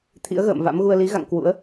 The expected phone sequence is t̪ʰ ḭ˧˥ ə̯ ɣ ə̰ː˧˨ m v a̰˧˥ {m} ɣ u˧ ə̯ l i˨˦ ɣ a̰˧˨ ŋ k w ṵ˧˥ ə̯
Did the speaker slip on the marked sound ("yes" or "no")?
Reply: no